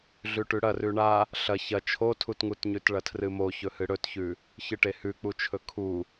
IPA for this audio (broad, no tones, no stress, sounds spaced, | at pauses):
ɮ ʉ ʈ ʉ ɽ ɐ r ʉ ɳ a | ɬ ɐ ç ɐ t͡ʃʰ o tʰ u t ŋ u t ɲ ʉ t ɭ ɐ tʰ r ɨ m o ç ɵ h ɨ ɽ ɵ t ç ʉ | ç ɨ ʈ e h ʉ k͡p u t͡ʃʰ ɵ kʰ u